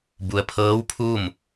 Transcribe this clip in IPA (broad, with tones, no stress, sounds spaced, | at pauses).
b u˩ ə̯ pʰ ɤː˧˥ w pʰ u˥˨ m